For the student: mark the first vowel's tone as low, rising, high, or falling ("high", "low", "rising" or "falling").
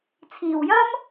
low